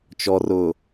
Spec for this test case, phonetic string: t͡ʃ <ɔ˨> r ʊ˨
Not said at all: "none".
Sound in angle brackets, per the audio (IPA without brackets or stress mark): ɔ˨